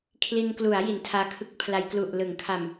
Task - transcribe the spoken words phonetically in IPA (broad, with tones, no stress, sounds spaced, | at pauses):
kʰ l i˧ n k l u˩˦ a̯ j i˩˦ n tʰ aː˧ kʰ ɯ˦˥ k̚ pʰ l a˧ j k l u˨˩ ʔ l ɯ˩˦ ŋ kʰ a˨˩ m